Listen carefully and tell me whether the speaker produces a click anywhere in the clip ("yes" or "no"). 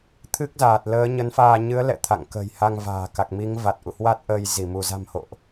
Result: no